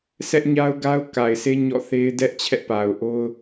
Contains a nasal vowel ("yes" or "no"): no